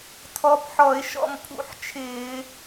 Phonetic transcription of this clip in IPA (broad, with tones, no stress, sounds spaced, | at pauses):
tʰ ɔ˨˥ p ħ ɔ˧˩˧ ɪ̯ ʃ ɔ̰˦˨ m pʰ ṵ˧˩˧ ħ t͡ʃʰ ɪː˧˩˧